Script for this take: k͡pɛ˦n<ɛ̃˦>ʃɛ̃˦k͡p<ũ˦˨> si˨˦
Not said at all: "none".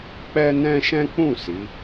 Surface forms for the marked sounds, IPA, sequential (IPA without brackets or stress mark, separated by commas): ɛ̃˦, ũ˦˨